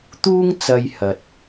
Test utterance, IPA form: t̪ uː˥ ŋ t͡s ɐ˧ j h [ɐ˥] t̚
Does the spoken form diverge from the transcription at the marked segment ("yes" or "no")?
yes